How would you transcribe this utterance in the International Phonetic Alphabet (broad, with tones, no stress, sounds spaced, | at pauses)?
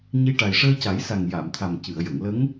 ɲ i˧ ʈ a˨˩ j ʂ əː˧ c a˨˩˦ j s a˨˩ ŋ j a˨˩˨ m t̪ʰ a˨˩ m c ɨ˨˩˨ ə̯ j ə˨˩˨ ŋ l ə˧˥ ŋ